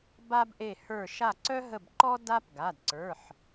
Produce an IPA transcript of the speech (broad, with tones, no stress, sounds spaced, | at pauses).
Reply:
b a˦ b ʔ e˧˩ h ə˞˧˩ ʃ a˧˩ ǀ œ˦ ɦ ə˧˩ b ǃ ɔ˦ d a˦ p ɡ a˩˧˩ d ǀ ə˞˩˧˩ ħ